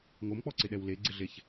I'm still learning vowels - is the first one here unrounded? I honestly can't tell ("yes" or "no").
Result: no